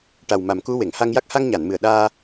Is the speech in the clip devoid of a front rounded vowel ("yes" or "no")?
yes